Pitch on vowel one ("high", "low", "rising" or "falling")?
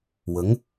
rising